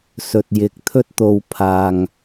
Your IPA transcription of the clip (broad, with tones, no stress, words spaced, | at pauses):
sɵ˨t̚jɪ˨k̚ t̪ʰɵ˧t̚t̪o˨w pʰaː˨ŋ